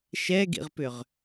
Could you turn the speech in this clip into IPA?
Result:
ʃ ɛ ɡ ḭ ʁ p ʏ ʁ

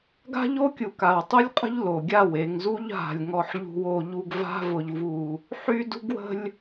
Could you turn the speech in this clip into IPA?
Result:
ɡ a̤˦ ʎ o˦ kʲ u˨ k a˨ w tˤ u˦ lʲ qʼ ə̤˦ ʎ l o˨ ɡʲ a˦˨ w e˨ ŋ z u˦ ʎ ɦ a̤˨ lʲ ŋ ɔ˨ ħ ʎ ṳ˨ w o˨ ʎ u˨ ɡ v a̤˦ v ʊ˨ ʎ v u˨ | ħ y˦ d ṳ˦ ɡ w ə̤˦ lʲ

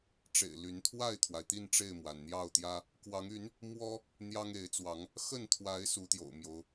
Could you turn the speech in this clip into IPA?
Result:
ʈ͡ʂ ḛ˨˩ ɪ̯ l y˨˦ n t̪ʰ w a˥˨ ɪ̯ t̪ʰ w a˩ ɪ̯ t̪ i˥˨ n ʈ͡ʂ e˥˨ ɪ̯ m w a˩ n n̪ j ɑ˥˨ ʊ̯ t̪ j ä˦ | k w ɑ˨˦ ŋ y˨˦ n | m w ɔ˦ | n̪ j ɑ˦ ŋ e˨˦ ɪ̯ t͡s w ɑ˨˦ ŋ | x ə˥˨ n t̪ʰ w a˨˦ ɪ̯ s u˨˦ t̪ j o̰˨˩ ʊ̯ m j o˨˦ ʊ̯

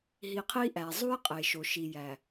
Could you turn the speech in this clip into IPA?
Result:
ɦ i˨ qʰ i˦ ʔ æ˨ zˤ u˦ j qʼ e˨ ʃ o˨ ʃ i˨ j æ˨

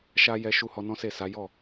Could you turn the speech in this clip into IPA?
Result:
ʃ a˦ j ɛ˦ ʃ u˦ h ɔ˧ n ɔ̃˦ s e˦˨ s a˨˦ j ɔ˦˨

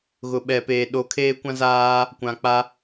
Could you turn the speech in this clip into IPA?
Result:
ɣ ʊ˨ ɓ ɛ˨ p eː˨ ɗ o˨˦ kʰ eː˦ kʷ ã˦ z aː˦ | kʷ ã˨ k͡p a˦

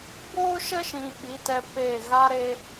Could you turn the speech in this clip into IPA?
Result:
b oː˦ ʃ ə˦ ʃ ĩ˨ ɓ i˨˦ t ɛ˧ p e˦˨ ɣ a˧ ɾ e˧

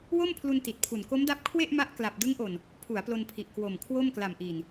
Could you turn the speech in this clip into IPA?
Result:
w o˥˩ m pʰ l u˧ n t i˨˩ t̚ pʰ u˨˩ n k o˦˥ m d a˦˥ p̚ kʰ w e˥˩ ʔ m a˦˥ ʔ k l a˨˩ p̚ d ɯ˦˥ ŋ ʔ o˨˩ n | pʰ u˩˦ a̯ p l o˧ n pʰ i˨˩ ʔ k w o˨˩ m kʰ w o˥˩ m k l a˨˩ m ʔ iː˨˩ n

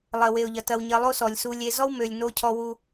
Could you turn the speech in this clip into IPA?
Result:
lˠ ɜ˨ w e˨ ʊ̯ ʎ ɐ˨ t ɐ˨ w ɲ ɜ˨ lˠ o˦ s ɔ˨ lʲ s u˨ lʲ e˨ z ɔ˦ w m ø˨ lʲ n o˦ cʰ ɔ˦ w u˦

